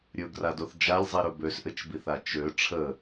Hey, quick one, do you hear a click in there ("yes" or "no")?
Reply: no